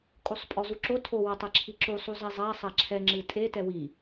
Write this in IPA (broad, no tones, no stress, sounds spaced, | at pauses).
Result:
kʼ o sˤ pʼ ɔ z u ǁ o tʰ o w ɐ tˤ e ǁʰ i ǁ u sˤ u z ɛ zˤ a sˤ a ǁʰ ɛ ŋ͡ǁ ɨ tʼ e t ɛ w i